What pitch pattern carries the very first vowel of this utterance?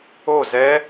falling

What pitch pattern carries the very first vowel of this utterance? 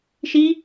high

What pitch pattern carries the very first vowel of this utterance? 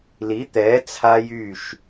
rising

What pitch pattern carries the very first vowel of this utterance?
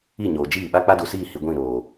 falling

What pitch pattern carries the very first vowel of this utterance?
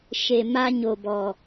low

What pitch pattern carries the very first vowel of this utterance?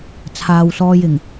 low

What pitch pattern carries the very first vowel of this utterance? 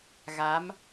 rising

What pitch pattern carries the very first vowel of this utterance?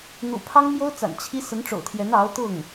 low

